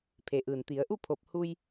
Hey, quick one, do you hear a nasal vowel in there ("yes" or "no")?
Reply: no